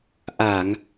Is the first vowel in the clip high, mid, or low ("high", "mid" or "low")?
low